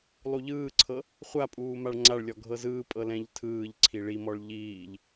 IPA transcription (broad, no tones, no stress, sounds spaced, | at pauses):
lˠ u ʎ ɯː ǀʰ ɤ | χʷ a pʼ uː m a ɭ ŋ͡ǀ a ɭ lʲ ɔ ɡʱ ɤ z ɯː pʼ ɤ l ɛ̃ ʎ tʰ ɯː ʎ ǀʰ i ɭ i m ɔ ɭ ʎ iː ʎ